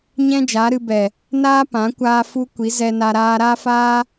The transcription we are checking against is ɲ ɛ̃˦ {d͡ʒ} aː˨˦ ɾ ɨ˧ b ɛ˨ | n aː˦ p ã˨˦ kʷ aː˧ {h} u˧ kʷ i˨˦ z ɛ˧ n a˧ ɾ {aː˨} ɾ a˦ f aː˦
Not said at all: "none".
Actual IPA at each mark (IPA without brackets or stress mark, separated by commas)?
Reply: d͡ʒ, f, aː˧